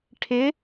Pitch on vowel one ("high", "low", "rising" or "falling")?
rising